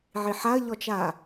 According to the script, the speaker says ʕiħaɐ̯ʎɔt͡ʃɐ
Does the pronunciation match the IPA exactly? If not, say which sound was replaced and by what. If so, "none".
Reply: ɐ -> a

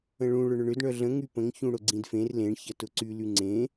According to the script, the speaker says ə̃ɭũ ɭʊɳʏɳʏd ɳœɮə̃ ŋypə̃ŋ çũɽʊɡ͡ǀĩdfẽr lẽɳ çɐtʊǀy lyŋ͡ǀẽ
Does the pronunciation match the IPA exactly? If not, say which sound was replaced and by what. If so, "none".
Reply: none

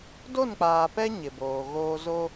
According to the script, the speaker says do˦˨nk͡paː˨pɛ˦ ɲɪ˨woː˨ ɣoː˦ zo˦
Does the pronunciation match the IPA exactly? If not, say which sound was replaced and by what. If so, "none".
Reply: w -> b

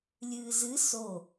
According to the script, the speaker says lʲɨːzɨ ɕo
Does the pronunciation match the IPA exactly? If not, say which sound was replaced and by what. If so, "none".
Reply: ɕ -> s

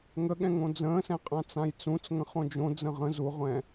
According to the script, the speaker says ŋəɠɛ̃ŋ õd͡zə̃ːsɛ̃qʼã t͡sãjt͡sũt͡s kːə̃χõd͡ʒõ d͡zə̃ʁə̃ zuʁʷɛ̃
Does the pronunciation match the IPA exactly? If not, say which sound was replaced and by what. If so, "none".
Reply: kː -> ŋ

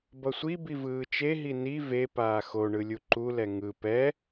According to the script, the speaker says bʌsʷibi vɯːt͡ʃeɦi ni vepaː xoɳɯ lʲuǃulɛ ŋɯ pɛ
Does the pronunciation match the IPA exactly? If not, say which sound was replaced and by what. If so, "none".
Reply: none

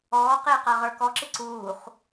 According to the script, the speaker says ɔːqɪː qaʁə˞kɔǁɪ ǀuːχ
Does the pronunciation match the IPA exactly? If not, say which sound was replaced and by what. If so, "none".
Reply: none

